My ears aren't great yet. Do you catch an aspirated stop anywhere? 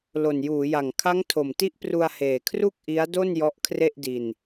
yes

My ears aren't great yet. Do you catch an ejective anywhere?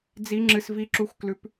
no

